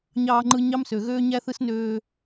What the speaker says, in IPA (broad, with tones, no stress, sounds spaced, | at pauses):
ɲ ɑː˨ ŋ͡ǃ ɯ˨ ɲ ɑ˦ m s ø˨ ɣ øː˦ ɲ æ˦ θ ɯ˦ s n øː˦